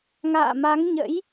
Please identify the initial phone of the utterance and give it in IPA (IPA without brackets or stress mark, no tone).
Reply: ŋ